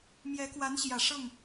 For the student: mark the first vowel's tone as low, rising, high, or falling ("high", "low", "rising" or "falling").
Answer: rising